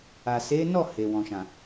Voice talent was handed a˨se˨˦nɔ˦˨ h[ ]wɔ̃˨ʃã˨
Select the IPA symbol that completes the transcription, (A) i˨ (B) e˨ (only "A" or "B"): B